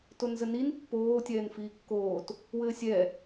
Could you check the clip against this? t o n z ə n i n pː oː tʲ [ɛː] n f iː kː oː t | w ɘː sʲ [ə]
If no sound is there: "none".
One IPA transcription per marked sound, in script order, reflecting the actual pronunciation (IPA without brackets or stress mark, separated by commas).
ɛː, ɛ